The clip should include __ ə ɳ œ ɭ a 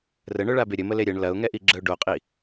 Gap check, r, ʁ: r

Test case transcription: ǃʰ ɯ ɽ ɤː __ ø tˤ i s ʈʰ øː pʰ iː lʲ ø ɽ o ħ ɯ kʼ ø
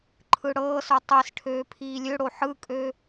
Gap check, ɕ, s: s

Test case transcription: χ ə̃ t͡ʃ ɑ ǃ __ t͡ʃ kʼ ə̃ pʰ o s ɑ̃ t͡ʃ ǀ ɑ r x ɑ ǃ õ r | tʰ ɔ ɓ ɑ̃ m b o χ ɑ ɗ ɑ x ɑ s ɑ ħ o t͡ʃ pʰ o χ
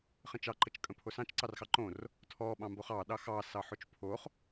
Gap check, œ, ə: ə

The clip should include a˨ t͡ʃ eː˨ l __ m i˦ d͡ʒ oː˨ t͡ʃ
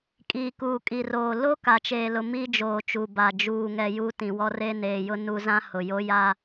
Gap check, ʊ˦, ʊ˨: ʊ˨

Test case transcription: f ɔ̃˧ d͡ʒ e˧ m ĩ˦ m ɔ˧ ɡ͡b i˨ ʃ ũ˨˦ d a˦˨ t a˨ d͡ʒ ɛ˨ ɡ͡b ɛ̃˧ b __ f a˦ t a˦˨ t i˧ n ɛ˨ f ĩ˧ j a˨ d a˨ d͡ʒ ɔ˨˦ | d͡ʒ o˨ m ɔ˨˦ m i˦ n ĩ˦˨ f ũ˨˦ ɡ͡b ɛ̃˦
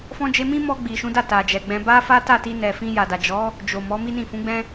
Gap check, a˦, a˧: a˦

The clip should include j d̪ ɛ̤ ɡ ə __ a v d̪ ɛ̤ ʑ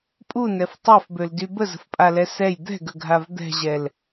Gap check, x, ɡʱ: ɡʱ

